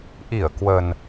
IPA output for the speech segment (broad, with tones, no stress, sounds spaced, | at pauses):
ʔ i˧˩ ə̯ k w ə˨˩ n